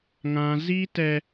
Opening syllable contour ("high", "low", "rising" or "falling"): high